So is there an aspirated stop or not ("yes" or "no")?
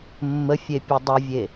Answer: no